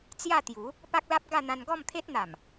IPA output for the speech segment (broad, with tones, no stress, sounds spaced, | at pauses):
t͡s j a˥˧ t̪ j u˨˦ | p a˦ k̚ l a˦ p̚ ɡ a˥˧ n̪ ã˧ n ɡ ɔ˥˧ m t̪ʰ e˦ t̚ n̪ a˨˩ m